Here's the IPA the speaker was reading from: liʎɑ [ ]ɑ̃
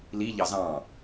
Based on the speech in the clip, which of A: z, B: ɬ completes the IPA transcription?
A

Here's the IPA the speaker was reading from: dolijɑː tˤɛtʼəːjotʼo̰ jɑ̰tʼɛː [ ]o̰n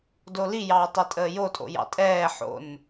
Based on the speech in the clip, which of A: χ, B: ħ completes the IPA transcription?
B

